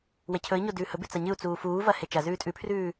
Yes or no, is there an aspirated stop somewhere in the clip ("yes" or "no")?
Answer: yes